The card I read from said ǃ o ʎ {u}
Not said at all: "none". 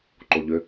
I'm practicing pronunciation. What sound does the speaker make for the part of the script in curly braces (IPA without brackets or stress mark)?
ʏ